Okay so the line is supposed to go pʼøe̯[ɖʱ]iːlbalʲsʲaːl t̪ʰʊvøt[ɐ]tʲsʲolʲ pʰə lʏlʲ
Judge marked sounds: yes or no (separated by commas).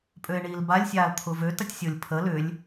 no, yes